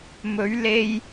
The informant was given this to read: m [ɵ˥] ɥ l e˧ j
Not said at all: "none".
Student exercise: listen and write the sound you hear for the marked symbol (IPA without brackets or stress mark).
ɵ˨˥